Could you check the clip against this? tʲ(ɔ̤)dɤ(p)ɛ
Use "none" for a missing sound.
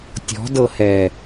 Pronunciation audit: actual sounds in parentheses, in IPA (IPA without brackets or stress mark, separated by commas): ɔ̤, h